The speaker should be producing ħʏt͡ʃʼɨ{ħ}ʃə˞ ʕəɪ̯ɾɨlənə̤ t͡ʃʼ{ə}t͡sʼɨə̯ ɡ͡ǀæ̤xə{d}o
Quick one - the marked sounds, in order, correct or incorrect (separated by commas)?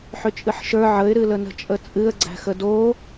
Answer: correct, correct, correct